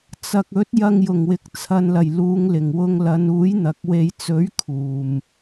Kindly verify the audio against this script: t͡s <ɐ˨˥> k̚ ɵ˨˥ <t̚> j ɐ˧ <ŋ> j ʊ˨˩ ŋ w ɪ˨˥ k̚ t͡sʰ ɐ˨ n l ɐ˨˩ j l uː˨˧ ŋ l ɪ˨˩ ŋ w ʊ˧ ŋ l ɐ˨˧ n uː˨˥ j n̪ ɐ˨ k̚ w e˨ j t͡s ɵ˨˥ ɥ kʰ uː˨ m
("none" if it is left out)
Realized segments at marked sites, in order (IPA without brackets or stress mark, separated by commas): ɐ˨, t̚, ŋ